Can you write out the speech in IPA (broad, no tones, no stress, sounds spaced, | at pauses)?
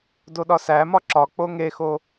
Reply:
d o ɗ ɒ s æ m ɒ ǁ ɒ k͡p o ŋ e x o